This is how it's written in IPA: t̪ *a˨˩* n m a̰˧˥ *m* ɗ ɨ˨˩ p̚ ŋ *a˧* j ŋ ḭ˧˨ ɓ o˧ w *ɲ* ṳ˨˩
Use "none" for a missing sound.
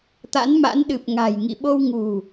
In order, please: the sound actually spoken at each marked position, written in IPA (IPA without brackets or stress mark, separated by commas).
a̰˧˥, n, a̤˨˩, ŋ